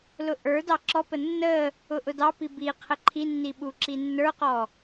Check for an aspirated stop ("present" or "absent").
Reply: present